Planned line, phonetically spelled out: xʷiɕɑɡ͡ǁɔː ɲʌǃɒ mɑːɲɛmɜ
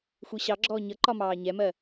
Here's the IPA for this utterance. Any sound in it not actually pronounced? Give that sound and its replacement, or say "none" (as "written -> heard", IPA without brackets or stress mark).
none